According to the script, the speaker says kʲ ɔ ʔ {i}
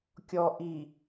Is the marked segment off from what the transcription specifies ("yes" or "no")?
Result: no